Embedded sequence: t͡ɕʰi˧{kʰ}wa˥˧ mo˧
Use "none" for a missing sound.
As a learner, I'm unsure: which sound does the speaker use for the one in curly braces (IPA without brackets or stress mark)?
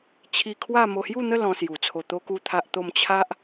kʰ